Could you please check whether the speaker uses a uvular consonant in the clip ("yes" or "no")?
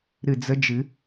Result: no